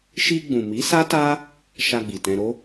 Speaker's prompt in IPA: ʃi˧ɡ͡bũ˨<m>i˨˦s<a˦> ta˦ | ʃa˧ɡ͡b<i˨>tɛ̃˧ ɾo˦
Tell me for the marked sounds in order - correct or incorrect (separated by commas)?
correct, correct, correct